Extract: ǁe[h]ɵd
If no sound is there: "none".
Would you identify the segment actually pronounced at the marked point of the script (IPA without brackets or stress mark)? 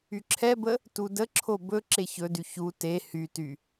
ç